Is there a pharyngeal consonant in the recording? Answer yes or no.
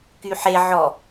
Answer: yes